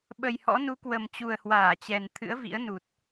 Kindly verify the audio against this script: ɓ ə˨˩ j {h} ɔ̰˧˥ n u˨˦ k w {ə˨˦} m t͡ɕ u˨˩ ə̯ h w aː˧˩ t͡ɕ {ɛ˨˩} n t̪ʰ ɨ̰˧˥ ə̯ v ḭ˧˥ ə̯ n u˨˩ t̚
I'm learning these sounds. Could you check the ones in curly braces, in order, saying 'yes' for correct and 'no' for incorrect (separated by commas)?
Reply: yes, no, yes